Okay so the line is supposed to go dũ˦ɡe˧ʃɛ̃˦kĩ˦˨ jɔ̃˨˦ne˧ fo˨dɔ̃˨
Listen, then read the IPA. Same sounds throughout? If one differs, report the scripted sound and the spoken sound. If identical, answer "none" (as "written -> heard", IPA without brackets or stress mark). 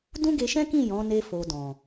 none